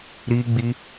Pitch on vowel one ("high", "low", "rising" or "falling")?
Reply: high